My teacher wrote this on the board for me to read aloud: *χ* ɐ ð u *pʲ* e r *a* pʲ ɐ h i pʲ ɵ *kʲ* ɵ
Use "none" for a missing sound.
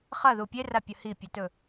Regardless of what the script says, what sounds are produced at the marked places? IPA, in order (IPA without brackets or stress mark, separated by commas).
χ, pʲ, a, t